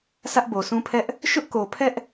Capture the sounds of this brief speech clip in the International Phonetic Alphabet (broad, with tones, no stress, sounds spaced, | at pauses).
s ä˦ ʔ b o˨ s ũ˦ pʰ ɛ˦ ʔ | ʃ ʊ˦ ʔ k o˨ pʰ ɛ˦ ʔ